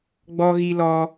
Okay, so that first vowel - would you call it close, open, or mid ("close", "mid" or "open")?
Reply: mid